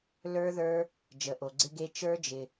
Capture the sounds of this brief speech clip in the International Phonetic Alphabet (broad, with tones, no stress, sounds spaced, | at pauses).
l ə˞˦˥ ð ə˞˦˥ | d͡ʒ ə˩ ʔ o˩ ɡ͡ǀ ɪ˦˥ ɡ e˦˥ t͡ʃ ə˞˦˥ d͡ʒ ɪ˩